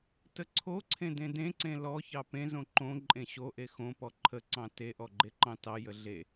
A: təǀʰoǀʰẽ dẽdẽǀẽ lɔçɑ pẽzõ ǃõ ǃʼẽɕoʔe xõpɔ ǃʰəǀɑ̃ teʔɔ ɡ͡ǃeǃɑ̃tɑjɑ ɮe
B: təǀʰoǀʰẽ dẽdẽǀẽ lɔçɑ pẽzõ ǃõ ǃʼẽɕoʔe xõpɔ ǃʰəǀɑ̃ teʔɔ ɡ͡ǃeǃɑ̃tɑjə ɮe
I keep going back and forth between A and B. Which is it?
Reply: B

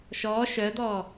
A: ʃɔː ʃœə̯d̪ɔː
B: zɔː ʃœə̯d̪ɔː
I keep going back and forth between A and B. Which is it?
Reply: A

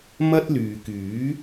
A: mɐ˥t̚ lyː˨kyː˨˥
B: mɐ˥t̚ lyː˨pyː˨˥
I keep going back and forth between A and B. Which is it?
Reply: A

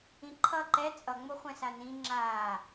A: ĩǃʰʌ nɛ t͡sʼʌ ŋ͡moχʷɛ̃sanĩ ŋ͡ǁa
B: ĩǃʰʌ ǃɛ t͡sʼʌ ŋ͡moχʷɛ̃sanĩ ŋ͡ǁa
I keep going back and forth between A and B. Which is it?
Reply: B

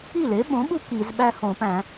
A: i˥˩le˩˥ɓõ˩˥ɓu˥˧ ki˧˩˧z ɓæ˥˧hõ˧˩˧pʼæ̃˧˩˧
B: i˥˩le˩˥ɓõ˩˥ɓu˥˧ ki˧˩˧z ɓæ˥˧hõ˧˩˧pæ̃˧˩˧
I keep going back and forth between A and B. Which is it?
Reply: B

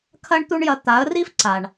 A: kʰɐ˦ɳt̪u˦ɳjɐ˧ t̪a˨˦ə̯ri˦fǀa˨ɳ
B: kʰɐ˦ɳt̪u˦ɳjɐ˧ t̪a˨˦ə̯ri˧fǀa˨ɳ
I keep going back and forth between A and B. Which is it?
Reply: A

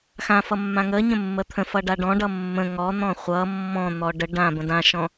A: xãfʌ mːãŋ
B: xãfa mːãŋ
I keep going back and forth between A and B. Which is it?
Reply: A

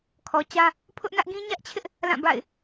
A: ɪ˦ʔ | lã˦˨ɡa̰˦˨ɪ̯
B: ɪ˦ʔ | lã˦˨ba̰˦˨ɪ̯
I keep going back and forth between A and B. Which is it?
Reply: B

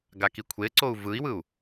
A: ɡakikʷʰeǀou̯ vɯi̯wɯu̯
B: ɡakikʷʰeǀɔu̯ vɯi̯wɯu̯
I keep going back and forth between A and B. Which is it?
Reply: A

